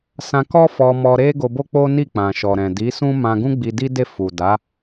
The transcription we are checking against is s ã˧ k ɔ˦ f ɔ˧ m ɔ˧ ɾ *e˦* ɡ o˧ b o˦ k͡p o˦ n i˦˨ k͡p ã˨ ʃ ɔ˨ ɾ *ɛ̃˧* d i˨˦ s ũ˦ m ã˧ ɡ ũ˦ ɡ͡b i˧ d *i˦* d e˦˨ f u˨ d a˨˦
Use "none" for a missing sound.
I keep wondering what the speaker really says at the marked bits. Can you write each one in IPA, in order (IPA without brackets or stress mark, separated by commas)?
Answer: e˦, ɛ̃˨, i˦